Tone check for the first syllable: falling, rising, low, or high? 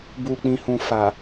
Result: low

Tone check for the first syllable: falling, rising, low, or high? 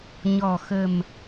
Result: low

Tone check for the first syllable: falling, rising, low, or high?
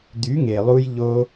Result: rising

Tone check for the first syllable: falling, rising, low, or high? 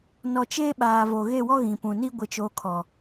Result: low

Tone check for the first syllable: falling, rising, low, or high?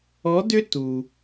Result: rising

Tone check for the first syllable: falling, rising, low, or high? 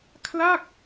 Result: falling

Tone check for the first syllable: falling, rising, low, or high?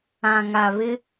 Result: low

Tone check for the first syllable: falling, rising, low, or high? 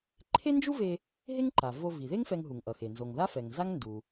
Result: high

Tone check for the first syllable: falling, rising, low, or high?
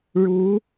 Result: rising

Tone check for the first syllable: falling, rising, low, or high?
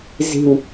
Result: low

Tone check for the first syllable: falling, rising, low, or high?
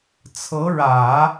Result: rising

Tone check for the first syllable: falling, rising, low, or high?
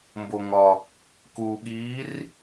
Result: low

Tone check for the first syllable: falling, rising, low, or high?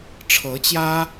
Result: rising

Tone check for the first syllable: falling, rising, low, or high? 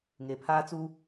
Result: low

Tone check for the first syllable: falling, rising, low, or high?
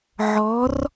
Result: rising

